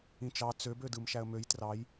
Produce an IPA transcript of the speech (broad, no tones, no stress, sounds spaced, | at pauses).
ĩ t͡ʃ ɑ t͡s ø b ø d ɯ m ʃ æ ə̯ m ø j t r ɑ j